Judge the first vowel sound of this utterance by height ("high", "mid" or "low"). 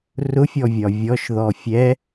high